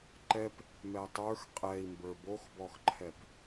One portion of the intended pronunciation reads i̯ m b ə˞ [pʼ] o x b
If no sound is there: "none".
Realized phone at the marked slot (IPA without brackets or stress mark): b